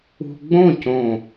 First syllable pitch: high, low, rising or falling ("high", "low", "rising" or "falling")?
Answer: low